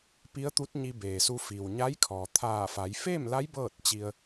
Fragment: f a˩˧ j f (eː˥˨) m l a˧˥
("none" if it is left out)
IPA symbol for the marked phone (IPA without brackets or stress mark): eː˥˨